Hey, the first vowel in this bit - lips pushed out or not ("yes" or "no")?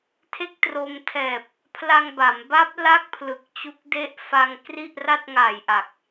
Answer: no